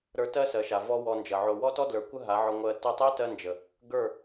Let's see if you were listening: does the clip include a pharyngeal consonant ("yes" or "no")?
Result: yes